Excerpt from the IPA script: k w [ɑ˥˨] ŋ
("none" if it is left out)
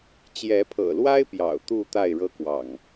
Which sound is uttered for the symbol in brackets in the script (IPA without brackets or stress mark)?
ɑ̰˨˩